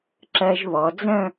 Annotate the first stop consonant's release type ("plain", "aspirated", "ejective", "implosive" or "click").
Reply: click